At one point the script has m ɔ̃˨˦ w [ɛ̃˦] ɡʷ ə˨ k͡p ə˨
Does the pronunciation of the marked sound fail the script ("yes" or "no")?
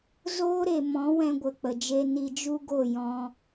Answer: yes